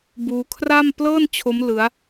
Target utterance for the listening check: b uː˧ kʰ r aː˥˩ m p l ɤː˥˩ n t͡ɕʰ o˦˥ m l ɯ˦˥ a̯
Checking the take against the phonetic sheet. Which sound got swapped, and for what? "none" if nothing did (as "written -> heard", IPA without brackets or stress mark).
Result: aː˥˩ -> a˥˩